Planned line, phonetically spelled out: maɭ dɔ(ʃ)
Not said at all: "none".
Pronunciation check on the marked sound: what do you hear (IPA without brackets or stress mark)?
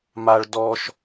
ʃ